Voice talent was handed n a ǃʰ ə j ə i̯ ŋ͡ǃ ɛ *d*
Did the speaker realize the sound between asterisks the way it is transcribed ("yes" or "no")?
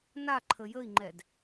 yes